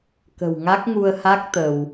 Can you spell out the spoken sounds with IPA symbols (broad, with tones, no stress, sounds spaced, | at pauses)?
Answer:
k ə̤˨˩ w ŋ a˦˥ k̚ ŋ u˧ ə̯ h a˦˥ k̚ t̪ ə˧ w